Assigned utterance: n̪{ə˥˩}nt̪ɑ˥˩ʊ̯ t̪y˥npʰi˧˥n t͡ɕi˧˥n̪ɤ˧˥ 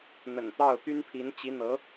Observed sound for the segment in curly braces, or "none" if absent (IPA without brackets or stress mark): ə̰˨˩